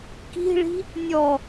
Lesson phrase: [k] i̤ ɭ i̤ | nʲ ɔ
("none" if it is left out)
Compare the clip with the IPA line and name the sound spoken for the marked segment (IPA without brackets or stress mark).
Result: k